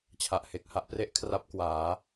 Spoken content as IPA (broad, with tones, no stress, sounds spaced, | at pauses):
t͡ɕʰ a˨˩ ʔ h e˨˩ k̚ h a˦˥ ʔ p r e˥˩ ʔ kʰ r a˦˥ p̚ k w aː˩˦